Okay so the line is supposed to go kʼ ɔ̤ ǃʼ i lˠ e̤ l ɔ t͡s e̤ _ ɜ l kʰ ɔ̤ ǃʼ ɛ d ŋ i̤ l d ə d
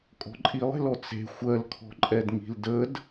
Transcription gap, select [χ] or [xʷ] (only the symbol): xʷ